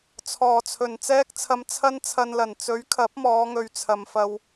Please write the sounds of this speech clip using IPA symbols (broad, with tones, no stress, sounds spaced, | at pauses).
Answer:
t͡sʰ ɔː˨˩ t͡sʰ ɵ˨˩ n t͡s ɛː˥ k̚ t͡sʰ ɐ˧ m t͡sʰ ɐ˥ n t͡sʰ ɐ˧ n l ɐ˨˩ n t͡s ɵ˨˥ ɥ kʰ ɐ˨˥ p̚ m ɔː˨˧ ŋ ɵ˨ ɥ t͡sʰ ɐ˨ m f ɐ˧ w